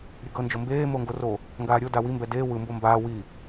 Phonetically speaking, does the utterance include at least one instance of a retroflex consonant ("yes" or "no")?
no